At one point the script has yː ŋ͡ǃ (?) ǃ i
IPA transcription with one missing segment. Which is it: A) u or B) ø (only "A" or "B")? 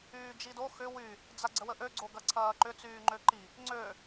B